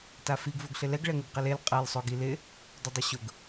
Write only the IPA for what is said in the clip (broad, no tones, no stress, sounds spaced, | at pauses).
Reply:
t a f i ɡ v o ɡ ɬ ɪ l ɛ ɡ ɭ ɛ ŋ ɪ ɡ q i l e l qʼ ɛ l sˤ o ɡ i l ɪ | d ʊ dˤ i ɕ ʊ ɡ